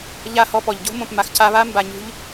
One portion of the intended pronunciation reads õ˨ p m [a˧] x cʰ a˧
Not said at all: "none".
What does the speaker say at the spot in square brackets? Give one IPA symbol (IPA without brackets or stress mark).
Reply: a˨